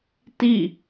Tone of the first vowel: falling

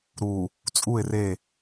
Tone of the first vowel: low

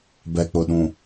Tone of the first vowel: low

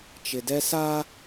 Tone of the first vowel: low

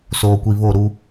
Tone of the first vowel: low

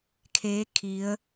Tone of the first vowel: rising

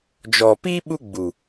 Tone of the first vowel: low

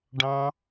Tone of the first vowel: high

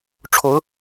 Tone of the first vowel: rising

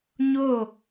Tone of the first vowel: falling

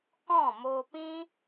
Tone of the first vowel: falling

